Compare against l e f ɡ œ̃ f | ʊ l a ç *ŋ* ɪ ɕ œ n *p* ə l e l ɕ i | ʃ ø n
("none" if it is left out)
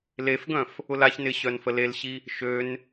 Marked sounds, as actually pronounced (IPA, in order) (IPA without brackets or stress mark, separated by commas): n, f